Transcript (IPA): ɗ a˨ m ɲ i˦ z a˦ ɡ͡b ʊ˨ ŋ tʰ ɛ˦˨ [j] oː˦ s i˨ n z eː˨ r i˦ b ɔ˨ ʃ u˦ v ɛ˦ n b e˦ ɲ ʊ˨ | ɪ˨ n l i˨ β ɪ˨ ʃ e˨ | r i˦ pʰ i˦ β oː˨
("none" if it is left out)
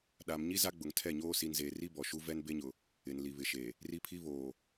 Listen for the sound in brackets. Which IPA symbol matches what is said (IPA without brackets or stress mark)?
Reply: ɲ